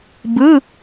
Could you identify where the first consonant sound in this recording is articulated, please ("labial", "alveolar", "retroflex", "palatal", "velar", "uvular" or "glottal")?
labial